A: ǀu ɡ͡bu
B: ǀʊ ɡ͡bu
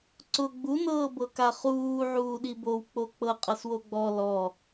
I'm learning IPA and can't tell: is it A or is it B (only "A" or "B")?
B